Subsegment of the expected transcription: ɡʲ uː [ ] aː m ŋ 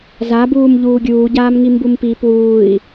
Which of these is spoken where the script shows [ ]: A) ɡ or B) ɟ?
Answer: B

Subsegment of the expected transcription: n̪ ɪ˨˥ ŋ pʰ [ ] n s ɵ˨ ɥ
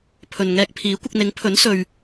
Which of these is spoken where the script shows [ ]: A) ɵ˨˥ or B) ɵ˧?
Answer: A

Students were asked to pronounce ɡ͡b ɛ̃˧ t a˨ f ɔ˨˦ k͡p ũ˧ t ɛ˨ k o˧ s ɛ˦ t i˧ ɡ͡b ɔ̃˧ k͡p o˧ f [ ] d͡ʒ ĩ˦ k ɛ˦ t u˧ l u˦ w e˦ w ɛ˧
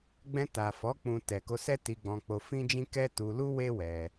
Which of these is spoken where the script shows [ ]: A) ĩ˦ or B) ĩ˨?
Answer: A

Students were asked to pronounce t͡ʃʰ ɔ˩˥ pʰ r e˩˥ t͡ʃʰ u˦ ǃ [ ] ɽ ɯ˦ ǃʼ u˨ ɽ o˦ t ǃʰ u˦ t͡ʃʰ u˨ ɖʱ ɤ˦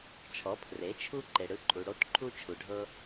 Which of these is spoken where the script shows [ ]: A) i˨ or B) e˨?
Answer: B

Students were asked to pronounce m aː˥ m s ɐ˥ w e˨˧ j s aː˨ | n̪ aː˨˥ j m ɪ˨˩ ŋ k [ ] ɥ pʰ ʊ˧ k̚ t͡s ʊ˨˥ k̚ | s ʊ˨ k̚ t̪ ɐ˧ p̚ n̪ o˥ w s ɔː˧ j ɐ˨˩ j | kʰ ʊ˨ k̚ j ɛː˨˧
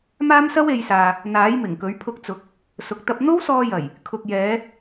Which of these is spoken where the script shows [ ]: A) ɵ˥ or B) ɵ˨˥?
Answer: B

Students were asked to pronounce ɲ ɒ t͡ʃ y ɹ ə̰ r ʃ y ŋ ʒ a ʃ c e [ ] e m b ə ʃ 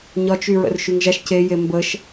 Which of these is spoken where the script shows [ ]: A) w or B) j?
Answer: B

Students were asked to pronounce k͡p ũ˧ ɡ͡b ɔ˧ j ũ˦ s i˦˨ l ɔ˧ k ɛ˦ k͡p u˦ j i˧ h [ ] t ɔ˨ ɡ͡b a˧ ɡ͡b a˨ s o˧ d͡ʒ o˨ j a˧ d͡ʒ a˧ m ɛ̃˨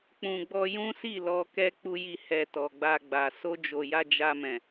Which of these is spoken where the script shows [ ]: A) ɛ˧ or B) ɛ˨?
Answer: A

